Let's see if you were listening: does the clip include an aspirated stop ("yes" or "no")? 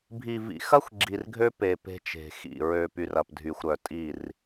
no